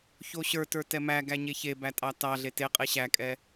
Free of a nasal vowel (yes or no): yes